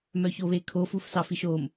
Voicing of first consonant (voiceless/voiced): voiced